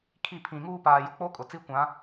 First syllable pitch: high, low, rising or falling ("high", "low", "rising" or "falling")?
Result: falling